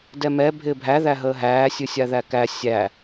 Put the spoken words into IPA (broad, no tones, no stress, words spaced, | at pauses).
dɛmɛ bʱɪːbʱæ ðæɦəːɦæː sʲɨsʲaðækæ sʲæ